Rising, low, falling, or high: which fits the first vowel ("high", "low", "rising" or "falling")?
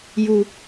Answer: low